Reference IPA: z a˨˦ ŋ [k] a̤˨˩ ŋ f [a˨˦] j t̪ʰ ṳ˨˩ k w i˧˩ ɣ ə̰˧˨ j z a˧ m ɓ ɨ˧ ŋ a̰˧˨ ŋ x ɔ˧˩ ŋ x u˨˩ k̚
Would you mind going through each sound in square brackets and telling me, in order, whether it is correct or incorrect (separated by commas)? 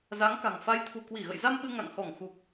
correct, correct